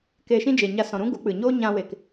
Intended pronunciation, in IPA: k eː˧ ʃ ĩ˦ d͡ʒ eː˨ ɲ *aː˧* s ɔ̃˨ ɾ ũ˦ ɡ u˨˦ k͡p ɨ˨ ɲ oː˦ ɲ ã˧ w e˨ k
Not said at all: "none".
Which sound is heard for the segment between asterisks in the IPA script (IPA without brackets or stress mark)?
a˧